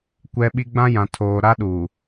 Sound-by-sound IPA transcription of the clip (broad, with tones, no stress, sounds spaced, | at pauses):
kʷ ɛ˦ ɓ i˦ ɡ͡b ã˦ j ã˨ tʰ oː˨ ɾ a˦ ɗ u˨